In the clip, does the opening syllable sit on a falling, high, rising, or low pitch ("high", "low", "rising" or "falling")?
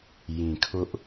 low